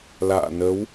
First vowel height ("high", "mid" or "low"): low